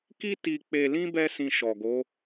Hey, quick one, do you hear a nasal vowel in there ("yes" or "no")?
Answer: yes